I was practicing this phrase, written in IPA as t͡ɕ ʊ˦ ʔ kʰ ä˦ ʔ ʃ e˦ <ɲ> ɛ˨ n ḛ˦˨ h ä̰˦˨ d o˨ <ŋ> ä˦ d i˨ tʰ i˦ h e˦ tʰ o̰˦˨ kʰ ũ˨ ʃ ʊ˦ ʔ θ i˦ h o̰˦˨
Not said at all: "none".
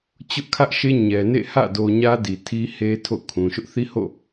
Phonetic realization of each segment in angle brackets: ɲ, ɲ

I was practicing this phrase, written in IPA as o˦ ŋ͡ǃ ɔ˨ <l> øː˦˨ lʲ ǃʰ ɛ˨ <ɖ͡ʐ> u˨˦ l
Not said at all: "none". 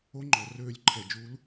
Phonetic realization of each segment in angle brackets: r, d͡ʒ

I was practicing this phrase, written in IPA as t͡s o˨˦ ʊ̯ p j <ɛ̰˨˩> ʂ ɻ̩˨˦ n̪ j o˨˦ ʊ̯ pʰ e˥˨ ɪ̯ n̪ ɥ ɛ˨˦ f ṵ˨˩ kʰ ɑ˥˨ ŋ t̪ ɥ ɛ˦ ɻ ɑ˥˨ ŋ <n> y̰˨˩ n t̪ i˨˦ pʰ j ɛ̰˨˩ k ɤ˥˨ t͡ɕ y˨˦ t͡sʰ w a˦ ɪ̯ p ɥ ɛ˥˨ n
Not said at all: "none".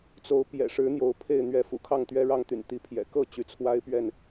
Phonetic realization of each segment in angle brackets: ɛ̰˨˩, t̪

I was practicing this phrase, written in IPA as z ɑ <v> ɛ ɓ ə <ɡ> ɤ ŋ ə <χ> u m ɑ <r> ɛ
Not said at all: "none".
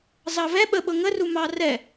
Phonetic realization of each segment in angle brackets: v, ɓ, r, r

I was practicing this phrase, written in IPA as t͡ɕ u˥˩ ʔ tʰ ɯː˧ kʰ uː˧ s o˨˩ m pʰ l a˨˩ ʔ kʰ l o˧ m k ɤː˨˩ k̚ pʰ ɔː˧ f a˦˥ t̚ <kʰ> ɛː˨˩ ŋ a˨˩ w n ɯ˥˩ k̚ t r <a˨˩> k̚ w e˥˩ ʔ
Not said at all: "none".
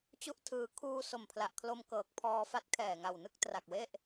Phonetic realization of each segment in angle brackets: kʰ, a˨˩

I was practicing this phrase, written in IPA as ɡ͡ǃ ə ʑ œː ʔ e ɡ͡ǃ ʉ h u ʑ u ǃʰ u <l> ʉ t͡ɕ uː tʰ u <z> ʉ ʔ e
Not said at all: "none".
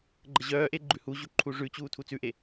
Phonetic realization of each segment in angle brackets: ʐ, t͡s

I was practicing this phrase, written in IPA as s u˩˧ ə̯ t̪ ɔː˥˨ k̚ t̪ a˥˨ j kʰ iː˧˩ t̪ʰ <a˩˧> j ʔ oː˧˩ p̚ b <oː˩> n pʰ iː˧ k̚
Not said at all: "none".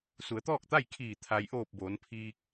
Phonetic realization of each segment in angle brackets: a˩, oː˩˧

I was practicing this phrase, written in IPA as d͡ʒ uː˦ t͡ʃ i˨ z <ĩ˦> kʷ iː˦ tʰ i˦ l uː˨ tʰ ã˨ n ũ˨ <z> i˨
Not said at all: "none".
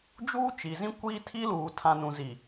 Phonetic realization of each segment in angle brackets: ĩ˦, z

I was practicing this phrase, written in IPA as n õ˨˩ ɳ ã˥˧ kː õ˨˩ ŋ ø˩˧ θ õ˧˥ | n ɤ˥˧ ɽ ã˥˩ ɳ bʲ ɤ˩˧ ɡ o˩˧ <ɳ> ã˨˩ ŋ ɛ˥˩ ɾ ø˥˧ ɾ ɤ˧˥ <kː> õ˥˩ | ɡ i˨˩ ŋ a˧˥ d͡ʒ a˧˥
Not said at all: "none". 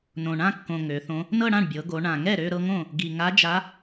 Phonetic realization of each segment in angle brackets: ɳ, ŋ

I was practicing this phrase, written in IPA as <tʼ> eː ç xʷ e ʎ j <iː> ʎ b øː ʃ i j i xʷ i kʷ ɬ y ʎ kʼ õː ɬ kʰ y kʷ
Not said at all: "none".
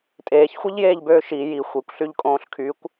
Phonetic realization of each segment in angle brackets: tʼ, eː

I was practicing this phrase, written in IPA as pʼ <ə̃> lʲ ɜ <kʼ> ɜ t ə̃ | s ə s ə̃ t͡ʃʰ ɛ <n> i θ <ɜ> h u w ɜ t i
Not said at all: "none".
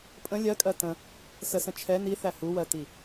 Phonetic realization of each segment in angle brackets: ə̃, kʼ, n, æ

